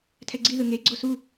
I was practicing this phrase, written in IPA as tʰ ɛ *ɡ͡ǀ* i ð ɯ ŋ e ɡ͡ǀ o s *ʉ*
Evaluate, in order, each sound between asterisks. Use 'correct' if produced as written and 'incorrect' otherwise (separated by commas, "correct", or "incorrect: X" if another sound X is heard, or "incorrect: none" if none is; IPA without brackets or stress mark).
correct, incorrect: u